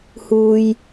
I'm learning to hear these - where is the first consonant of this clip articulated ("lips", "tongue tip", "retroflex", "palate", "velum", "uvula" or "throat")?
throat